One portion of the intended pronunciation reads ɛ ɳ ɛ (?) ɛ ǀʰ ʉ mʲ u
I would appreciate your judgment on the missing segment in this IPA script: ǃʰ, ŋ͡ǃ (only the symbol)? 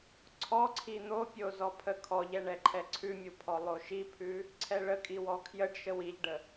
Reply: ǃʰ